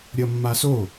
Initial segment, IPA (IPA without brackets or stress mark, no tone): ɾʲ